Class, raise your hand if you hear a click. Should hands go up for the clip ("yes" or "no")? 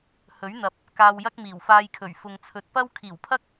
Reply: no